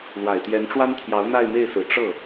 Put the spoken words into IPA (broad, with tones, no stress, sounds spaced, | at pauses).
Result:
l w a˨˩ ɪ̯ t̪ j ɛ˧˥ n ʈ͡ʂ w a˥ n t̪ʰ j ɑ˧˥ ʊ̯ n̪ a˥˧ ɪ̯ m e˥˩ ɪ̯ s ɹ̩˨˩ ʈ͡ʂ ɤ˥˩